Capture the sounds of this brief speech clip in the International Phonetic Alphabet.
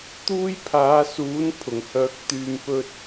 t̪uː˥jpʰaː˨˧suː˨˥n pʰʊ˨˩ŋhœː˧k̚t̪yː˧m pɵ˧t̚

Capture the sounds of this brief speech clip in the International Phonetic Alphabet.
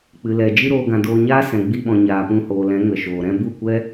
k͡pɨ˨lɛ˨ d͡ʒi˦ɾoː˧ɡã˨doː˧ ɲaː˦sɛ̃˨ ɡ͡bi˧ɓɔ̃˨ ɲaː˨pũ˧hoː˨lɛ̃˨˦ ŋə˨ʃoː˨ɾɛ̃˦ bu˦˨kʷɛ˦

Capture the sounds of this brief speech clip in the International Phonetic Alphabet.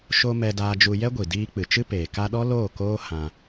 ʃo˧ mɛ˧daː˧d͡ʒu˧ jɛ˦ɡʷi˨diː˧k͡pɨ˨ t͡ʃɨ˦peː˨ ka˧ɗɔ˦ loː˦˨koː˦ hã˧

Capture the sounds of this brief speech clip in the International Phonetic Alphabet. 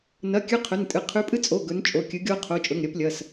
nɐ˩˧˩kʲʉ˨˦ qʰɵ˩˧˩ntʼɨ˩˧˩ qʰʉ˨˦pʼɨ˦t͡sʼo˩˧˩ ɡɵ˨˦nt͡ʃʼo˩˧˩kʲɨ˨˦ ɡʲoː˦qʰo˩˧˩t͡ʃʼɵ˩˧˩ŋ ɾʲɐ˨˦plʲɐ˩˧˩s

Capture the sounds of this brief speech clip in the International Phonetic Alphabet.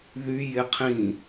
ðy jeqʰĩ

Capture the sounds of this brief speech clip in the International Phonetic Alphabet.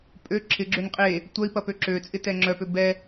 pʼø ǁʰɪɡ͡ǁøn qʼe | tʷœi̯pɐpø ǁø t͡sʼɪtɛŋ͡ǁœpø bɛ

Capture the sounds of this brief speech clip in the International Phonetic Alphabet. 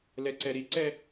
lɛǀɛɾiǀɛ

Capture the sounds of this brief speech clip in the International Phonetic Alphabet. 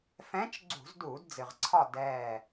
fɛ̃˧˥t͡ʃɡ͡ǀṳ˧˩˧z duː˧˩˧dd͡zɨ˩ʁǀʰɒ˦˨ dɛː˦˨

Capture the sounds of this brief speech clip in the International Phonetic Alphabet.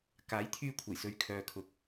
kaː˨˥jt̪ʰyː˧kʷʰɐ˨˩jsɵ˨ɥ kʰœː˨kʰʊ˨k̚

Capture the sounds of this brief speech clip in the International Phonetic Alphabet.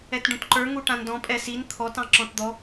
ɛtɖũtǃə˞ ŋuʈãndɔ̃ pʼɛsin t̪ʰɔt ɑ̃ǁɔ̃td̪ɔ

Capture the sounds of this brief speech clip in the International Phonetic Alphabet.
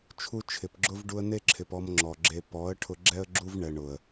t͡ʃʰu˧ t͡ʃʰɪ˨pɡ͡ǁʊ˦v ɖu˧ə̯ne˦ǁʰɪ˨p ɔ˧mŋ͡ǁɔ˨ɡ͡ǁe˧ pɔ˨˦ə̯ ʈʰʊ˧ɡ͡ǁɛ˦ə̯ɡ͡ǁu˦vɳɛ˨ ɳʊ˨ə̯

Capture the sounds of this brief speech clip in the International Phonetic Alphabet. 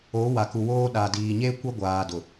o˨˦ wa˨ku˨woː˦ ɗa˨diː˨ɲeː˦ kʷɛ˦ɡʷaː˨dʊ˨

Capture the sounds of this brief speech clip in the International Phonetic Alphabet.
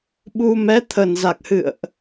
ɓu˧ mɛ˨˦t̪ʰə˨˩nza˨˩k̚hɨ̰˧˨ə̯ʔ

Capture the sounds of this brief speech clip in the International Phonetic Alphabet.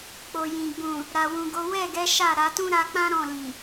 k͡po˨ jĩ˨ ɡ͡bũ˨ | ɾa˨wũ˨ɡo˨˦ wɛ˦˨ɡɛ˨˦ ʃa˦˨ɾa˨˦ tũ˦ɾa˧k͡pã˦ ɾɔ̃˦˨lĩ˨

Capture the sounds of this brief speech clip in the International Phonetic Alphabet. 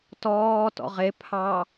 tɔː tɔ̰ʁe pʰɑ

